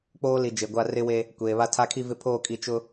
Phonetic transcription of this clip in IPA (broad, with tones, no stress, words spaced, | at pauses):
k͡poː˦li˨ d͡ʒe˨ɡʷa˦ rɪ˦we˦ | kʷeː˨βa˦ tʰa˦kʰi˦vɪ˦ pʰoː˦˨kʼi˨ t͡ʃʊ˦